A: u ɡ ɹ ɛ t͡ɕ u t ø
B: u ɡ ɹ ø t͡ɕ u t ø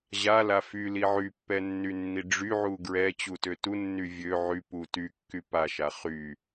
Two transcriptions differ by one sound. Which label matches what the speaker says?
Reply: A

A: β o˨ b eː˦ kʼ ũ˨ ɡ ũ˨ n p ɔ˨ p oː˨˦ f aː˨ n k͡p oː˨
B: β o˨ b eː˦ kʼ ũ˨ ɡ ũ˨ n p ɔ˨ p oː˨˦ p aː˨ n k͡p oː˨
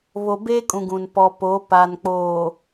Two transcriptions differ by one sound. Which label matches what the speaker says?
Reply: B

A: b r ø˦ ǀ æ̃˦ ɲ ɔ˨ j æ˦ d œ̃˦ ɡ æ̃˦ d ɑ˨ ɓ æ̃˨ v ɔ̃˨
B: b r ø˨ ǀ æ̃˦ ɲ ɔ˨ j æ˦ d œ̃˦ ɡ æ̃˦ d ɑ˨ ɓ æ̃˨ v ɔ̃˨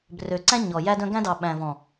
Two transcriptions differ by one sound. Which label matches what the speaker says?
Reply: B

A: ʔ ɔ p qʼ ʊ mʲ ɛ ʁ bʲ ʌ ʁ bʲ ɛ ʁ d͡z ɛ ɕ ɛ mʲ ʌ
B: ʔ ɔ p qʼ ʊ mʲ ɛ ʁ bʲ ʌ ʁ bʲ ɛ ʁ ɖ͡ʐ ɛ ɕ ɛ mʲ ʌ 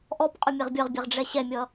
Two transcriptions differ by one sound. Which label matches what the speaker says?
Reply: B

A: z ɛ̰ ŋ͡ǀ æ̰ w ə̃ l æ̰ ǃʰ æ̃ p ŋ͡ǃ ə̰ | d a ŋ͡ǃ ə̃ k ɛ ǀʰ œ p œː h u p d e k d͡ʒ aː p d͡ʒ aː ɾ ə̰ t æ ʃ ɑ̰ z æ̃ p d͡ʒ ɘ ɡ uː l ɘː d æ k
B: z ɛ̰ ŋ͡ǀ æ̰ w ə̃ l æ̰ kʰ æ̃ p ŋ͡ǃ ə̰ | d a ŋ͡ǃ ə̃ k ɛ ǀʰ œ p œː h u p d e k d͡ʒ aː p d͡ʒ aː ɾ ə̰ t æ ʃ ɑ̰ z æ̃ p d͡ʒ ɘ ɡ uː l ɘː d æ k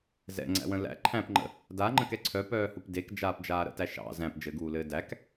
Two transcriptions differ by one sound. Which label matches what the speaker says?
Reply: A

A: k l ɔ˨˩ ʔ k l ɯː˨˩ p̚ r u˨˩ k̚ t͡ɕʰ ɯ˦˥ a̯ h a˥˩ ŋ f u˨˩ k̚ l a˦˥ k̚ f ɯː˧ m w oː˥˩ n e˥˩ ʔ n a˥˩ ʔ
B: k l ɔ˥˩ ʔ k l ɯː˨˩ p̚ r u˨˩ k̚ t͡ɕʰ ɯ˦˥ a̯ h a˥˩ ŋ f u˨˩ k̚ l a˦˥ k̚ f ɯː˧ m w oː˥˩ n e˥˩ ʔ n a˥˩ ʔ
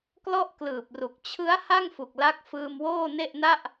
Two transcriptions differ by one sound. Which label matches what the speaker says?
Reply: B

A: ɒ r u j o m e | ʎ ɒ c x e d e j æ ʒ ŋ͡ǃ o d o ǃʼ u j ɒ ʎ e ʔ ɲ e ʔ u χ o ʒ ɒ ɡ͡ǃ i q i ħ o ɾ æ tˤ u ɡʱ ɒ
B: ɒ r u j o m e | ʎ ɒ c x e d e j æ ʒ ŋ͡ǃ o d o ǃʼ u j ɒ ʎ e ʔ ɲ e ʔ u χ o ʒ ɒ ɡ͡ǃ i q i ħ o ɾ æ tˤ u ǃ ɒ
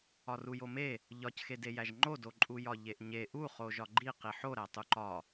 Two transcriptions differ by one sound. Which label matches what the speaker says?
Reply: B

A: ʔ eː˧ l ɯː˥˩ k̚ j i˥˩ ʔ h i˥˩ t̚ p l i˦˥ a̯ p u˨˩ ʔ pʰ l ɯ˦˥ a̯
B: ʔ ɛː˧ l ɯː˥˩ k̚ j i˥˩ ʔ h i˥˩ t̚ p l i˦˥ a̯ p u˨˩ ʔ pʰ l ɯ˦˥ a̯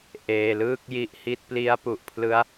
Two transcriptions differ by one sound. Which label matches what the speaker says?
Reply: A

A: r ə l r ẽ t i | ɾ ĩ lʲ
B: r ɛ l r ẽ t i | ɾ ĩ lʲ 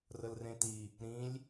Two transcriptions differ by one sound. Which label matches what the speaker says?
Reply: A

